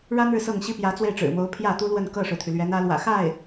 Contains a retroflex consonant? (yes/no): yes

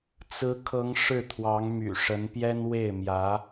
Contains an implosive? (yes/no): no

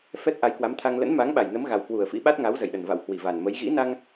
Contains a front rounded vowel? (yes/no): no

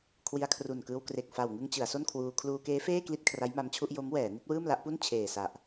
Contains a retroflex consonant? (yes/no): no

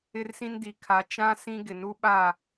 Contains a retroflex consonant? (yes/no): no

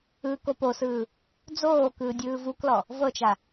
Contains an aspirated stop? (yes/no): no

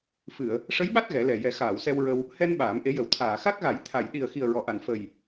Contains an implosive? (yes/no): yes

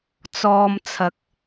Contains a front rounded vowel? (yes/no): no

